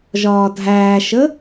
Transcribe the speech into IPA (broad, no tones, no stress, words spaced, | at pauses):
ʒɒːdʱæːʃə